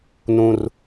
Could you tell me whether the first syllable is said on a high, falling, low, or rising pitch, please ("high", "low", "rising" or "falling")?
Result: low